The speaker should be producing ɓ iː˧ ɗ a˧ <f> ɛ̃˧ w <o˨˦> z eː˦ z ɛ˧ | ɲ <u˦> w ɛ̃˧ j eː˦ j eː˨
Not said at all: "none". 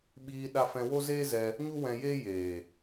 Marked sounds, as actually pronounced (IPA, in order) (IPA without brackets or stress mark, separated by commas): f, o˦, u˦